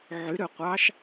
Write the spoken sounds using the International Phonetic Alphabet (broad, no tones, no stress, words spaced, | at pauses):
ʕyɾøqʷɑʃ